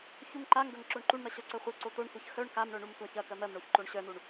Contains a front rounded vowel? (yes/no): yes